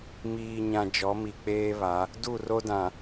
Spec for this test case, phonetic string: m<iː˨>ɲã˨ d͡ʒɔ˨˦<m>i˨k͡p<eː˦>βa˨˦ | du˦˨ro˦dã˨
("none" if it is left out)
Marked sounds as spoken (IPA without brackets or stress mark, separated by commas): iː˨, m, eː˦